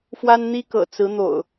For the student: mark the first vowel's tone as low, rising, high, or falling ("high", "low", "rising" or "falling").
high